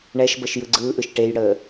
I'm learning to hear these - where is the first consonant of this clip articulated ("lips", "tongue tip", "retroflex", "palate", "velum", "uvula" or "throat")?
retroflex